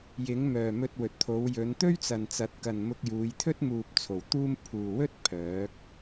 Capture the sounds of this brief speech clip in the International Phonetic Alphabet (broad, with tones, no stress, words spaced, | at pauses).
jɪ˨˥ŋmœː˨ mɵ˧t̚wɵ˨t̚t̪ʰo˨˧wjɵ˨˧n t̪ɵ˥ɥt͡sɐ˨nt͡sɐ˨˥t̚ kɐ˨nmʊ˧k̚juː˨˧jt̪ʰɵ˥t̚ muː˨p̚t͡sʰo˨˩w t̪uː˧m pʰuː˨wɵ˥t̚ pʰœː˨˥k̚